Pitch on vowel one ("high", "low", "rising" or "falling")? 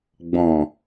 low